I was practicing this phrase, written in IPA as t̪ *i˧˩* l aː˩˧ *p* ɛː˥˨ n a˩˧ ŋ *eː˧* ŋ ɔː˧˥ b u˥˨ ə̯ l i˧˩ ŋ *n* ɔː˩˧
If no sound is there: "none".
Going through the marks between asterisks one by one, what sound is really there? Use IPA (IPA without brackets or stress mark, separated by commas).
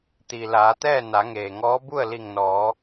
i˩, t̪, eː˩, n